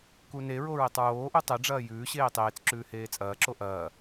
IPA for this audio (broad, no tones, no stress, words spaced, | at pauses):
kuneɹo ɹetˤɹoːʔu tˤeɖ͡ʐɐː jʉːɕeː tˤeːt͡sǁʉː heːt͡sʼɐːǁo ʔɐː